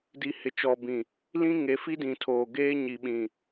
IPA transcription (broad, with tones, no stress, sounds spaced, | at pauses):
d i˨ h ɪ˨ t͡ʃ ɔ˨ b ĩ˨ | l ĩ˦ ŋ e˨˦ f i˦ d ĩ˨ tʰ oː˨ ɡ eː˦ ɲ i˨ ɓ ĩ˨